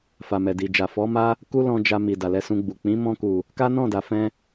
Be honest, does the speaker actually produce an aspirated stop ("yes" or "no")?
no